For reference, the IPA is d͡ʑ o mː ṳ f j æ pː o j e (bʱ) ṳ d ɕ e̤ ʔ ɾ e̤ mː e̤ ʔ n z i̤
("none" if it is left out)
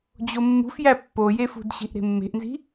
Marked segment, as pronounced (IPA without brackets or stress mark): f